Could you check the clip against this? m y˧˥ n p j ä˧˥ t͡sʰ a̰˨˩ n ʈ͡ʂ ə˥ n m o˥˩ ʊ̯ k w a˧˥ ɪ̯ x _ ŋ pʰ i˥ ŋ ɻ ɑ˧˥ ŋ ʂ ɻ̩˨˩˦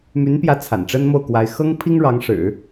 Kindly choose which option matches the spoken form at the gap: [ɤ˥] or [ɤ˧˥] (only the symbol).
ɤ˥